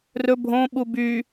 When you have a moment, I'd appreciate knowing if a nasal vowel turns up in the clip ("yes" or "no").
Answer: yes